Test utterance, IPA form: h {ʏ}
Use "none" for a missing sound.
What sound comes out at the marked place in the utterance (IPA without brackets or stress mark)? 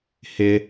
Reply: ɪ